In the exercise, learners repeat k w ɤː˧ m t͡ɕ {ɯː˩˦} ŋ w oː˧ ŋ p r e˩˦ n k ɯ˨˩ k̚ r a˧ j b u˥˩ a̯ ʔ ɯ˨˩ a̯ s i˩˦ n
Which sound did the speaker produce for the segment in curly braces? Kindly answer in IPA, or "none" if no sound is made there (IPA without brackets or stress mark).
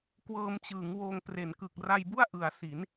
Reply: ɯː˩˦